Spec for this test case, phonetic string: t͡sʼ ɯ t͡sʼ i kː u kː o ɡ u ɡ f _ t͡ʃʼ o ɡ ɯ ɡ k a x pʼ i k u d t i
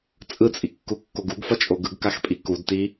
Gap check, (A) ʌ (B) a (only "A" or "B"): A